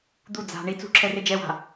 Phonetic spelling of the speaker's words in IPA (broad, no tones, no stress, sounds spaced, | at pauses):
d̪ u d͡z a̤ ɳ i t͡s ṳ ǁʰ ɛ r e d͡ʒ ɛ w a̤